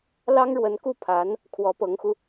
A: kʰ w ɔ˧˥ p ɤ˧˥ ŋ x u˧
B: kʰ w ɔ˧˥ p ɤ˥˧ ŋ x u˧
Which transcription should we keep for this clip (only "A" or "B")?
A